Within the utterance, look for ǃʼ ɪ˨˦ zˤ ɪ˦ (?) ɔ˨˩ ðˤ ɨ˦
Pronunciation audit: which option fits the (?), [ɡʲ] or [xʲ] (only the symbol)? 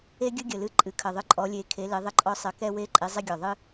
ɡʲ